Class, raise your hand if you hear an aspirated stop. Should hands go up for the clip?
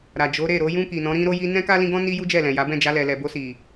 no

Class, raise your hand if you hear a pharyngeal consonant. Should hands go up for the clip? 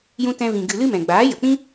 no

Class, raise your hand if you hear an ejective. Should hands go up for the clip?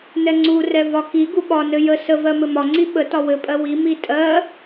yes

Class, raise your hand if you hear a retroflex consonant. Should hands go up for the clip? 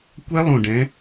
yes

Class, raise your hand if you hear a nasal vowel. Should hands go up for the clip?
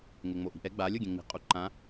yes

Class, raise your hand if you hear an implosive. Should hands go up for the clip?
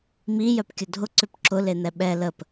yes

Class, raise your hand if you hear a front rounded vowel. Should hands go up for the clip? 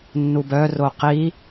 yes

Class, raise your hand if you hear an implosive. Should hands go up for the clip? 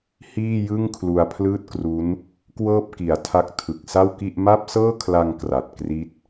no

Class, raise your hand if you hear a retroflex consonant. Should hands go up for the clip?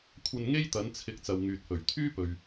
no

